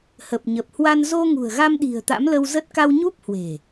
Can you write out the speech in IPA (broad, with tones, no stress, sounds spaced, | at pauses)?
h ə˨˩ p̚ ɲ ə˨˩ p̚ h w a˧ n z o˧ ŋ ṳ˨˩ ə̯ ɣ a˧ m ɗ i̤˨˩ ə̯ t̪ a̰˧˥ m l ə˧ w z ə˦˥ t̚ k a˧ w ɲ u˦˥ p̚ h w e̤˨˩